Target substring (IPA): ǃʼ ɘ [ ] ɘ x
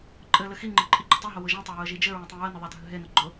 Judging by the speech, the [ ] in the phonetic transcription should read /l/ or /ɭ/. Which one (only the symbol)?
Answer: l